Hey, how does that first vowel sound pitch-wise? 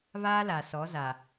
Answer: high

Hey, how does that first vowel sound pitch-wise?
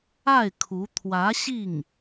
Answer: falling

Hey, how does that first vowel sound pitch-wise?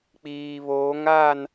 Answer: low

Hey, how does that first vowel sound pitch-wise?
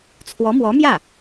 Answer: rising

